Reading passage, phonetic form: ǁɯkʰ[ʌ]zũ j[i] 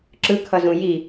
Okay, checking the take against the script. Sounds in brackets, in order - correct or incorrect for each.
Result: correct, correct

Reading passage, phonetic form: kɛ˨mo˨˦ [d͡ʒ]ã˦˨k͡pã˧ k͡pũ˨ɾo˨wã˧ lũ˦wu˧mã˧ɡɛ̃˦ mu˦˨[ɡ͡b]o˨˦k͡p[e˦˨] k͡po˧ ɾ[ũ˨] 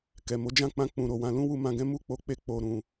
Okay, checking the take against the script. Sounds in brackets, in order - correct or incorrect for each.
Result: correct, incorrect, correct, correct

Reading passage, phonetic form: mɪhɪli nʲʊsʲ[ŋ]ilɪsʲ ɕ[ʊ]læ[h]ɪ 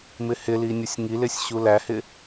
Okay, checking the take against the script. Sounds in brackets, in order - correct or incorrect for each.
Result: correct, incorrect, correct

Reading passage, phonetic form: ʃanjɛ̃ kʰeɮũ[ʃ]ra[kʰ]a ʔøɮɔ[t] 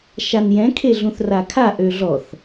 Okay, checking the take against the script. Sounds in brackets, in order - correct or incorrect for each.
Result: incorrect, correct, incorrect

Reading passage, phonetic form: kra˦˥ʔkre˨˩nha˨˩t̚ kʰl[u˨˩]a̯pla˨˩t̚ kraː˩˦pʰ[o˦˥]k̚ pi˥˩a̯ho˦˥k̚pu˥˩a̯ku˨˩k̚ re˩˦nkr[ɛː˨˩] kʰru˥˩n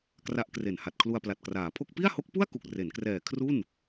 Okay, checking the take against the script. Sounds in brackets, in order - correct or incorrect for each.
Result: incorrect, incorrect, correct

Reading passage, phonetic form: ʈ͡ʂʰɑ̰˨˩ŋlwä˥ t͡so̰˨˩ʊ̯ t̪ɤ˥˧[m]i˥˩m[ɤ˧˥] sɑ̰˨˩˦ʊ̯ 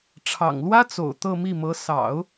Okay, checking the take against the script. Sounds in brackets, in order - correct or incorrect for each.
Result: correct, correct

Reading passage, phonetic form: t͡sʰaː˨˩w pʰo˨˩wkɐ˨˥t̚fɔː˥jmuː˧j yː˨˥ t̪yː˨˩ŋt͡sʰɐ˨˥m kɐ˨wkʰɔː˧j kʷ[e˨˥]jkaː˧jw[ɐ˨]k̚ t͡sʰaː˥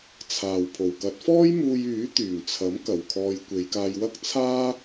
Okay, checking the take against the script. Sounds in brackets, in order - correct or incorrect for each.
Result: incorrect, incorrect

